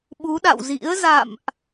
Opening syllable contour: rising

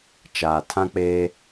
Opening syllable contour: low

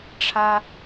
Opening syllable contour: high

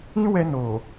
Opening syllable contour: high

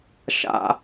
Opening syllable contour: low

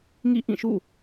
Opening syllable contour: falling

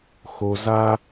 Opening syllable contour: low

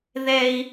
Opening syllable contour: high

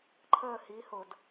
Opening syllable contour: falling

